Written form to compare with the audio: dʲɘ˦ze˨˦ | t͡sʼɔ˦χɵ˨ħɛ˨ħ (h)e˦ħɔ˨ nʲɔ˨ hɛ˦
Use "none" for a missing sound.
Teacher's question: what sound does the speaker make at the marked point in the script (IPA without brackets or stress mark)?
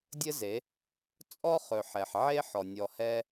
ʕ